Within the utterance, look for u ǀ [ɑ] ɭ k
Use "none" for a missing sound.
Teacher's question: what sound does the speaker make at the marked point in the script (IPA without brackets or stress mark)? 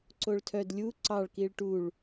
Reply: ɑ